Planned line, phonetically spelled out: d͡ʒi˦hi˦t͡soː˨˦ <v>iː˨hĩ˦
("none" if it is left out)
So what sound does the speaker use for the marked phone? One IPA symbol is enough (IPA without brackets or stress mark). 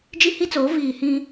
v